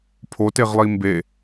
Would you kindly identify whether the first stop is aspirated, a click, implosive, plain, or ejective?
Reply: aspirated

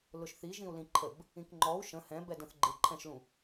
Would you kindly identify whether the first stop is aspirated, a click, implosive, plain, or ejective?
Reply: click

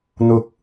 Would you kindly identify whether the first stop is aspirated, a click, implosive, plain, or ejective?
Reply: plain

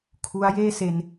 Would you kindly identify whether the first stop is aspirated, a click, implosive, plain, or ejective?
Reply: aspirated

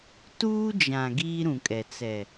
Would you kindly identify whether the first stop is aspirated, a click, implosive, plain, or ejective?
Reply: plain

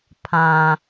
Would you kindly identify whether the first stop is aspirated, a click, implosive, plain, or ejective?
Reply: aspirated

